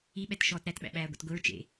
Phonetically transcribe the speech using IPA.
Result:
iɓɛt ʃɔːtɾætɓæ̰ ɓæːɡʷɛ̰tɡʷiɹ t͡ʃḛ

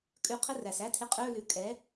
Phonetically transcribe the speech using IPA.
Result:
kʼʉ˧qʰə˦˥r æ˩sæ˦˥tʰɪ˧ qʼɵ˧˥˧lʉ˩˥kʼɛ˩˥

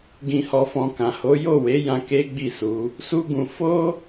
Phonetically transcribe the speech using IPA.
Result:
ɡĩ˨hɔ˨fɔ̃˨ kã˨ho˨˦ jo˦˨we˨˦jã˧ ke˦ɡ͡bi˦˨su˨˦ | su˦ɡũ˧ fo˦

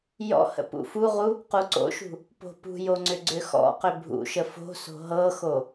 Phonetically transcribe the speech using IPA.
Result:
jɔ̰hə̰ pṵfuʁu | quǀo̰ʃṳ | po̤pṳjo ŋ͡ǀʏɡ͡ǀʏxɔ̰qʏ bʱṵʃə fo̤so̤ ɦɤxo

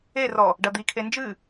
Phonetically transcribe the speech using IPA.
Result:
erɔ | ɖɐd̪ikʰe nd͡ʒɨ

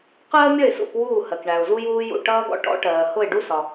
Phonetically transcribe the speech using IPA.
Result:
qɜː˥ mʲʌ˥˩ɪ̯sṵ˥˩k wuː˥˩hɜ˩kɳæ˩ʊ̯ zu˥juː˥jṵ˥˩ ʈʌː˥ɡɔ̰˥ ʈɔ̰˥ʈɜː˩ hʊ˥˩ɪ̯ɖu˥sɒ˩

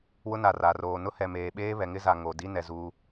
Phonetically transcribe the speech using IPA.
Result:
wʊ˦na˨ ra˨roː˨ nʊ˦hɛ˨meː˨ɓeː˦ βɛ˨ŋɪ˦za˨ ŋo˨ di˦nɛ˨ zuː˦

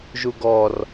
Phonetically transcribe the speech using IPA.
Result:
ʒuɡɔr

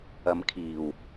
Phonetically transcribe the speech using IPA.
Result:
ɐ˨˧mkʰiː˨˩w

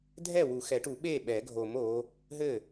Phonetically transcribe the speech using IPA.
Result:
dʱɛ˥˩wu˨˩˦xɛ˨˩˦ʈu˨˩˦ ɓe˥˩ɓɛ˨˩˦ ɡʱo˨˩˦mo˨˦ | ɦɘ˥˩

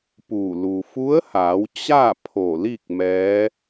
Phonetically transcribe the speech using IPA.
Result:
pu˧˩ lu˩fu˧˥ə̯haː˩˧w t͡ɕa˥˨ pʰo˧˩li˥˨k̚ mɛː˧˥

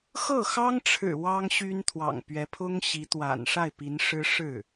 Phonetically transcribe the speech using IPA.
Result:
xɤ˥˩xɑ˥ŋʈ͡ʂʰɻ̩˨˩ wɑ˥ŋɕy˥n t̪ʰwɑ̰˨˩ŋpɥɛ˧˥pʰʊ˥ŋɕi˧˥ t̪wa̰˨˩n ʂa˥˩ɪ̯pi˧˥nʂɻ̩˥ ʂɻ̩˥˩

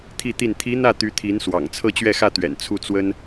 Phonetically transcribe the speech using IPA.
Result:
t̪ʰi˥˧t̪i˥˩n t̪ʰi˧˥ n̪ä˥˩ t̪y˧˥t̪ʰi˧˥nswɑ̰˨˩ŋ t͡sʰɤ˥˧t͡ɕɥɛ˥˧xä˥˩t̪ɥɛ̰˨˩n t͡sʰu˥˩t͡swə˥n

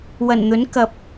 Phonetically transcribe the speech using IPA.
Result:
wɐ˨˩nn̪ɵ˨˥n kɐ˨p̚

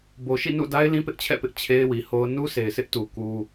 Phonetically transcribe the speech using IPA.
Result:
bo˨ʃḭ˦˨nṵ˦˨da˦ɪ̯ lĩ˦pɪ˦ʔt͡ɕʰɛ̰˦˨pɪ˦ʔ t͡ɕʰe˦ɪ̯wi˨ho˦ʊ̯ nu˦se˨ɪ̯sɪ˦ʔtu˨ ku˦

